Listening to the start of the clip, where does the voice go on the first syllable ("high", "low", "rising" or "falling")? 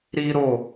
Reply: high